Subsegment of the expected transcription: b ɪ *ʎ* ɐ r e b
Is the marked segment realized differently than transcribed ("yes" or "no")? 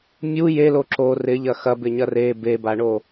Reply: yes